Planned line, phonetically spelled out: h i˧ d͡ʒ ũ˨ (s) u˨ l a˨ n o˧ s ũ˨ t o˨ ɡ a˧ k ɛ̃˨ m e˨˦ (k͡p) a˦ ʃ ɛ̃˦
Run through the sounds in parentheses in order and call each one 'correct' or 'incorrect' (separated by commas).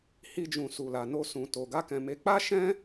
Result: correct, correct